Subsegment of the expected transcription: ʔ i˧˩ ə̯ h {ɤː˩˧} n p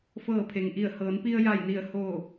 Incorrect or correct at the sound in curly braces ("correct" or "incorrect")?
correct